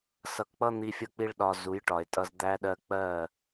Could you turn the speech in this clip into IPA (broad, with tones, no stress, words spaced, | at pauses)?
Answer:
sʌ˧kk͡pʌ˦ n̪i˧fʲʌ˧k͡pi˧ɭɗɒ˨ zu˨˦jʈɒ˨e̯tʼʌ˧z d̪æ˧ɗɜ˧ k͡pɜ˦˨